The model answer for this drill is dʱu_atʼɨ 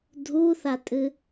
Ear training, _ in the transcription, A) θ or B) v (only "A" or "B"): A